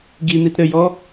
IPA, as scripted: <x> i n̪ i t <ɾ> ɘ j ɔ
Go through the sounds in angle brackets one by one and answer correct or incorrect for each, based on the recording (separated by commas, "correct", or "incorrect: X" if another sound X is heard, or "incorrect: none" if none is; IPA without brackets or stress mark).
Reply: incorrect: ɡ, correct